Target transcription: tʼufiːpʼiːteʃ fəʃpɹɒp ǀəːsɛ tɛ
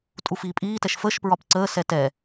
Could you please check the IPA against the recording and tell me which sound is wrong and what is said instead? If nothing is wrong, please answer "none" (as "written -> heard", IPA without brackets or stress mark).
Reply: e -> ɛ